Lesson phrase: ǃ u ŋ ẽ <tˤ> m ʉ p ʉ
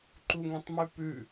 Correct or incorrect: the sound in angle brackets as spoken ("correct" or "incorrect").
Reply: correct